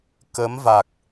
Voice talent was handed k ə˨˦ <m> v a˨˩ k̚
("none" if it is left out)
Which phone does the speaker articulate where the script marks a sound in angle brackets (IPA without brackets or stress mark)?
m